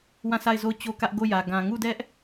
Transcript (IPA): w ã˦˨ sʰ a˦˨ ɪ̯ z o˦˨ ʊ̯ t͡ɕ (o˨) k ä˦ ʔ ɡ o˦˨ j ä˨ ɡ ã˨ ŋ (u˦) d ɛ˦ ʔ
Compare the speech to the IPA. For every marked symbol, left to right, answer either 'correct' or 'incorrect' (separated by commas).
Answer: incorrect, incorrect